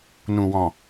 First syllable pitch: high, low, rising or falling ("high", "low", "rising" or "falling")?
low